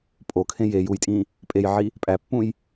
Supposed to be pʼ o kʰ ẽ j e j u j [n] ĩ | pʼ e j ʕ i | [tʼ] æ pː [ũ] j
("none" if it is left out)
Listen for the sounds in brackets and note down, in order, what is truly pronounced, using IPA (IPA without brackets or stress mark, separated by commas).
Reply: tʼ, pʼ, ũ